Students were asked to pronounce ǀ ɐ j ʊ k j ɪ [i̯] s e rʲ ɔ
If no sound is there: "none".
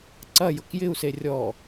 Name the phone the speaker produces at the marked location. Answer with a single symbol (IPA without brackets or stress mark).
u̯